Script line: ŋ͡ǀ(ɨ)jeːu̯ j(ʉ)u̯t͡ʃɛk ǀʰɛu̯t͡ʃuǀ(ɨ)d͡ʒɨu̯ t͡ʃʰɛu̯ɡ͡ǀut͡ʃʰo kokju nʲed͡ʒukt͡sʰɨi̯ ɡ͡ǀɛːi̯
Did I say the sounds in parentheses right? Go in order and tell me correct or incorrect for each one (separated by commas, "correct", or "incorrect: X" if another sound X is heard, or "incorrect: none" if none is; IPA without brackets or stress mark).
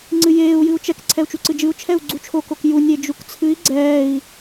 correct, incorrect: ɨ, correct